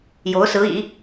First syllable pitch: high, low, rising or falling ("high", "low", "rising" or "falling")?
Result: rising